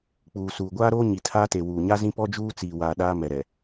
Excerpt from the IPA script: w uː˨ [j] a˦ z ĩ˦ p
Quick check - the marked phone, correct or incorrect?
incorrect